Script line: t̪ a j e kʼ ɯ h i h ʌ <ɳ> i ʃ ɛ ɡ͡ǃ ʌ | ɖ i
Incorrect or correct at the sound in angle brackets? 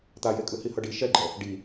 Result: incorrect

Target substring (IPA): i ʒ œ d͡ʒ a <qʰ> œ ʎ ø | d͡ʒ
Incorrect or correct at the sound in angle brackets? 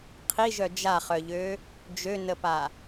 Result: incorrect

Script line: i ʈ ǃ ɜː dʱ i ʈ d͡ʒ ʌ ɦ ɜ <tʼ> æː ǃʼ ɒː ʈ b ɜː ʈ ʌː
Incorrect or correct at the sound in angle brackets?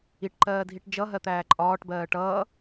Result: incorrect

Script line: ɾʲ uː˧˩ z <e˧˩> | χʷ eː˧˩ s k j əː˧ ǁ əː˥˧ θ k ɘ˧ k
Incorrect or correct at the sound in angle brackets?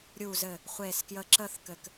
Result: incorrect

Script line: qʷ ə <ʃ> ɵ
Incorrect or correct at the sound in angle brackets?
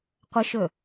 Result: correct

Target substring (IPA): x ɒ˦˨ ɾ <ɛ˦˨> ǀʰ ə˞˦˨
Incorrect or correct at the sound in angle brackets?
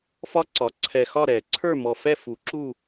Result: incorrect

